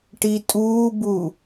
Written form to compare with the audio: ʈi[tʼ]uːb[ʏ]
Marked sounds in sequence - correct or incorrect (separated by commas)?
correct, incorrect